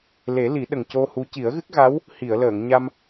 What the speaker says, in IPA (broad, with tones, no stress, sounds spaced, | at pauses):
l e˨˩˦ l i˨˩˦ ɗ ə˨˩ ŋ c o˧ h u˧˥ c i˨˩˦ ə̯ ɣ ɨ˦˥ k̚ ɣ a˧˥ w | h i˨˩˨ ə̯ l əː˨˩˨ ŋ ɲ a˧ m